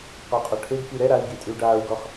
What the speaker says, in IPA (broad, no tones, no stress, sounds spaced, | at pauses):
q ɔ qʼ ɔ ʈʰ e ɡ k i ɾ ɛ ɾ a i̯ ɡ i tʼ y u̯ ɖ aː u̯ ɡ ɔ χ